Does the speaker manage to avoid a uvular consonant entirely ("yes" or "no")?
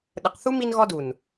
no